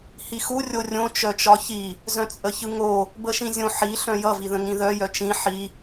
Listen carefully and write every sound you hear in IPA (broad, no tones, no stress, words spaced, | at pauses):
hixu rʲorʲõ t͡ʃœt͡ʃɒçi | zœ̃t͡sʼəçɯŋo | bəʃĩzʲõ ħi ɬœ̃jʌ viðə̃ŋĩðœ jœt͡ʃĩ ħi